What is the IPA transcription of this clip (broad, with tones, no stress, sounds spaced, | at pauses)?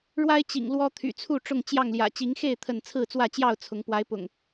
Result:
ɻ w a˦ ɪ̯ t͡ɕ ḭ˨˩ ŋ l w ɔ˦ t̪ʰ y̰˨˩ t͡sʰ u˥˨ ʈ͡ʂ ʊ˥˨ ŋ t͡ɕ j ɑ˥˨ ŋ l j ä̰˨˩ t͡ɕ i˨˦ ŋ x e˥˨ ɪ̯ t̪ʰ ə˥˨ n t͡sʰ ɹ̩˥˨ t͡s w ä˥˨ t͡ɕ j ɑ˥˨ ʊ̯ t͡sʰ ʊ˨˦ ŋ p w a˨˦ ɪ̯ p ʊ̰˨˩ ŋ